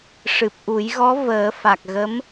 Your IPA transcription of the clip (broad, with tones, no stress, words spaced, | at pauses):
ʂɨ˨˩p̚ʔu˨˩˦jɣɔ˧˥ vəː˨˩˦fa˨˩k̚ ɣə˧˥m